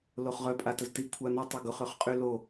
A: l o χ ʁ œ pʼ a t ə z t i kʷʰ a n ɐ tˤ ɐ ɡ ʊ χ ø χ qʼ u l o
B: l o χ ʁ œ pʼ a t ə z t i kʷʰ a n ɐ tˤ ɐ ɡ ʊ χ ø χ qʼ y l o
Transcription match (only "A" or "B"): B